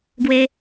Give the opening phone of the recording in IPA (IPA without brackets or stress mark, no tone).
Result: ɡ